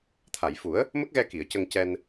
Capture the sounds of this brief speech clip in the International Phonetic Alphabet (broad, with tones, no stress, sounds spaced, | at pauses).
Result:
t̪ʰ a˨˩˨ j f u˨˩˦ ə̯ | m ə˦˥ k̚ ɣ ɛ˧ k i˨˩˨ ə̯ c ə˧ ŋ c ɛ˧ n